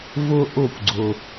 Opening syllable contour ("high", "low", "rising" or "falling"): high